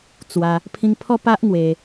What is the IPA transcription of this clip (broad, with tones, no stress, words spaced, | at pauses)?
t͡swa˧ | pʰĩ˧ŋpʰɔ˦ pa˦ʔŋwe˧